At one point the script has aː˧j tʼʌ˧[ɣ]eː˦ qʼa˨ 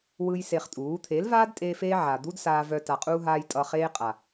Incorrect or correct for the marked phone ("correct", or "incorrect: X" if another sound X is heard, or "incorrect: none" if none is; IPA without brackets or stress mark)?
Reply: incorrect: χ